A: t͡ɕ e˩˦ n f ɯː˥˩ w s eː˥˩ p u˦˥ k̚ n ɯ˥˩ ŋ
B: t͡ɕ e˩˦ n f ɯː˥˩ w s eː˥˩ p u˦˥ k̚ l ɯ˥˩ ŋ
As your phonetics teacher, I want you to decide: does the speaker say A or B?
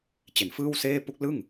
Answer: B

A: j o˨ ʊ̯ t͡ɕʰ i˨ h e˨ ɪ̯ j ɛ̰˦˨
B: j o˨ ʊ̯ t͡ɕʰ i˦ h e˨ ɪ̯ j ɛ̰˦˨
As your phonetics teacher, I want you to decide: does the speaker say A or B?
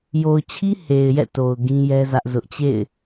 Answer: B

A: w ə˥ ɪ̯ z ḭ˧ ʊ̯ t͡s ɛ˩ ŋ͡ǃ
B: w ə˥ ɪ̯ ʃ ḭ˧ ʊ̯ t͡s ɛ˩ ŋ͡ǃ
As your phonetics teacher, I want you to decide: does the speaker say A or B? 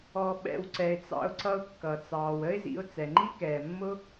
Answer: A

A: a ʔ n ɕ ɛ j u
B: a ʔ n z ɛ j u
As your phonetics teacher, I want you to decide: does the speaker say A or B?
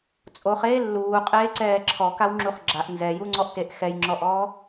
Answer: B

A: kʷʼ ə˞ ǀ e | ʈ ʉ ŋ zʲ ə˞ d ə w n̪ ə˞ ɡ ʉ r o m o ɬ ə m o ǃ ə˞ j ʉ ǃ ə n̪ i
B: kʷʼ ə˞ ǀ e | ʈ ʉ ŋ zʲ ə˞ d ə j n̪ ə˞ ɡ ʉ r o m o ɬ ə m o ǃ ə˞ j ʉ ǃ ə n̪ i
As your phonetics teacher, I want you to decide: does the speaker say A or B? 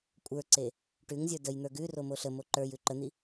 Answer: B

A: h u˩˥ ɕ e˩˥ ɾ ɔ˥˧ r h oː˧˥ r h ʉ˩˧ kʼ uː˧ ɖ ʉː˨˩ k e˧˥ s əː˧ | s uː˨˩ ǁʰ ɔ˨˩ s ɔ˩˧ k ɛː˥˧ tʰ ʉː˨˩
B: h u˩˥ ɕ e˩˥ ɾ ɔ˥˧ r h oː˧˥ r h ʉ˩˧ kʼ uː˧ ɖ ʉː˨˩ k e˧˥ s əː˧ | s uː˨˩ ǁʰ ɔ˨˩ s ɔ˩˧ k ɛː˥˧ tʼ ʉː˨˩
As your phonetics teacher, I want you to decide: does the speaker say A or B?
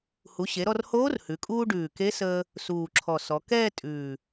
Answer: B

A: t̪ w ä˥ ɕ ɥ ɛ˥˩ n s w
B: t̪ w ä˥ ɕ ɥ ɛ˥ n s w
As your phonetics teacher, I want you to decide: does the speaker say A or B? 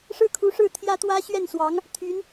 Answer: A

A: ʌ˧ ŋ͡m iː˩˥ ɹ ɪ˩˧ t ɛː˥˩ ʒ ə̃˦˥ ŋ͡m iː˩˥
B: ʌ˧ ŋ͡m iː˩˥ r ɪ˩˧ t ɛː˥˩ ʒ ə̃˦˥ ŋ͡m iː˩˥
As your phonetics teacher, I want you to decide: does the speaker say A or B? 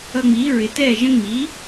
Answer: A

